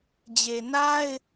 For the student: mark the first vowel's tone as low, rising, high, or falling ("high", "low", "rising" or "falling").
low